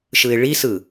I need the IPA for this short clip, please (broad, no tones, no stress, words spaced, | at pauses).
ʃɯɪ̯ɭisɯ